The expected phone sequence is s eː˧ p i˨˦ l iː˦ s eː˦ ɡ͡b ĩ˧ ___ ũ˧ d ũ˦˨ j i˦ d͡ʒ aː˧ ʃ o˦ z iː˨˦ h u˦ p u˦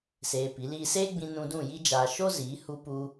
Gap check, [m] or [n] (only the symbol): n